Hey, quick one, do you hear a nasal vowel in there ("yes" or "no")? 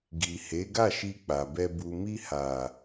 no